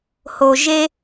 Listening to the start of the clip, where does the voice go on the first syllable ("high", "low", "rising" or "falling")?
low